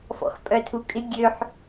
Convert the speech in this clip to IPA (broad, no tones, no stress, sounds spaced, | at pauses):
f ɔ̰ x pʼ œ tʰ u kʼ ɪ ɡʲ ø ħ